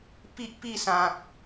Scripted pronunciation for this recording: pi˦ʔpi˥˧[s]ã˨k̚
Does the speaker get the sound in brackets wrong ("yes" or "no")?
no